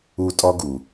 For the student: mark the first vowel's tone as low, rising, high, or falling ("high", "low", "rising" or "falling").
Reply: high